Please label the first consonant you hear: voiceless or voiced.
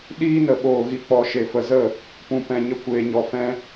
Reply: voiced